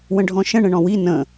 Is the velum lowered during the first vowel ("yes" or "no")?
yes